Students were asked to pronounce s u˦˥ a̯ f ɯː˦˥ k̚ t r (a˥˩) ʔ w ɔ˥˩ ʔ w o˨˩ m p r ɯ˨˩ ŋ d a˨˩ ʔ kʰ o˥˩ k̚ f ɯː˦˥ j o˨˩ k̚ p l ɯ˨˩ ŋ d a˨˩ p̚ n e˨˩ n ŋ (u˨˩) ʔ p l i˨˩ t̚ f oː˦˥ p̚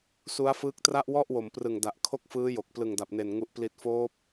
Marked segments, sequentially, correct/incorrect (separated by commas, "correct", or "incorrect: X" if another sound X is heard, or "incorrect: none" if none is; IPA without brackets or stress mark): correct, correct